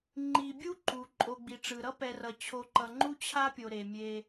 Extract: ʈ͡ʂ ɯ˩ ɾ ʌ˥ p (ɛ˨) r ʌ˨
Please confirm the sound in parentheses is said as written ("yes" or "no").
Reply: yes